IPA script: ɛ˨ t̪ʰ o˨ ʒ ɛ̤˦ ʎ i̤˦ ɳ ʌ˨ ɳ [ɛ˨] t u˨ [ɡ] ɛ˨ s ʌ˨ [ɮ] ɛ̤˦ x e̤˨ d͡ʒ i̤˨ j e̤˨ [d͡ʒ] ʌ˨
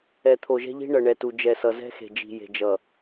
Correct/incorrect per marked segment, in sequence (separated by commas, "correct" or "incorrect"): correct, incorrect, incorrect, correct